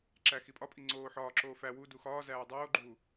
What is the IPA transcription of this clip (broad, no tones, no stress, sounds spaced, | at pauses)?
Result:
ǁ æ x i pʼ ɒ pʼ i ŋ͡ǀ oː ħ ɒː ǁ oː f æ w u d u x ɒː z æː dˤ oː ɡ͡ǃ uː